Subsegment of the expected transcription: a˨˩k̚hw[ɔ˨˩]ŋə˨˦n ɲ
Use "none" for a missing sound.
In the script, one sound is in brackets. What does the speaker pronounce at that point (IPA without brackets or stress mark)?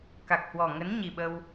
ɔ˨˩